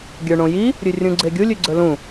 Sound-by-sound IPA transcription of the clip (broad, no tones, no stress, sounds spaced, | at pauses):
ɡʲ ə˞ ɳ õ j i | ɾʲ ʉ rʲ ũ ɡ͡ǀ e ɡʲ u lʲ ʉ ɡ͡ǀ ə˞ l ũ